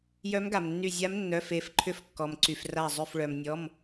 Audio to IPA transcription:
jœ˧˥mɡa˩mnːy˧˩ zʲa˧˥mnːœ˩˧˩f e˧˩f ǃʰʏ˧˥fkːɔ˩mǀy˩f ra˧˩zˤø˧˩fɭœ˩m nʲɔ˩˧˩m

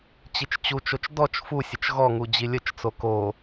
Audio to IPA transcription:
t͡ɕit͡ʃt͡ɕut͡ʃot͡ʃ dɔt͡ʃ fusʲət͡ʃ ɣɔŋu d͡ʑilʲət͡ʃt͡so ko

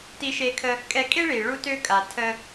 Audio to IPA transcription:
ti˧ʃe˧kʰə˧ | kʼɛ˧kʼe˥ɭi˩ ɭu˧tø˧kʼa˩ tʰə˧

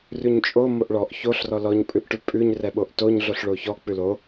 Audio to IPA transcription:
rʉɲt͡ʃʼo moʔɭɔʔ çoɬ rɔlɔɲ pʼʉʔʈʉpʼʉɲ rɛɓoʔtoɲ ɮoɬɭoçɔ k͡pʉlo

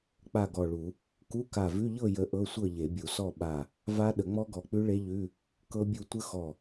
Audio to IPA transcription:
k͡pa˥˨ɡɔ˧˩ɭu˨˩˦ | ku˧˥˧ka˧˩vʉ˧˥˧ ʎɤ˥˨jə˨˦ ʔɤ˧˥˧sʷɤ˥˨ ʎe˨˩˦bʲu˨˩˦sɔ˥˨ ɓa˧˩ | va˦˥ ɗə˨˩˦ŋ͡mɔ˦˥ɡɔ˧˩k͡pʉ˦˥ ɭe˦˥ʎʉ˧˥˧ | kɤ˦˥bʲu˥˨ tʷə˦˥xɔ˧˩

